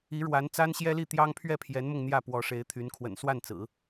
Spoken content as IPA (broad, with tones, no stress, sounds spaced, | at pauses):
i˧˥ ɻ w a˧˥ n t͡s a˥ n ɕ j ɛ˥ l i˥˩ t̪ j ɑ˥ ŋ pʰ ɥ ɛ˥˩ pʰ j ɛ˧˥ n m ʊ˧ ŋ n̪ j ä˥˩ p w ɔ˧˥ ʂ e˧˥ ɪ̯ t̪ʰ y˧˥ n kʰ w ə̰˨˩ n s w a˥˩ n t͡s ɹ̩˨˩˦